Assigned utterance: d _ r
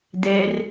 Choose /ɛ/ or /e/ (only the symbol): ɛ